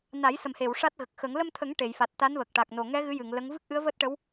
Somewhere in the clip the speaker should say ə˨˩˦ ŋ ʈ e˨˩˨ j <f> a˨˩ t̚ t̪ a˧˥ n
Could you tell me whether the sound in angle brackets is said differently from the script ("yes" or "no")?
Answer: no